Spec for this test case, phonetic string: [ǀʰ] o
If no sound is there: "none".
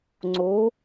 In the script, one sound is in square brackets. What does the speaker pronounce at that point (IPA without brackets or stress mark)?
ŋ͡ǀ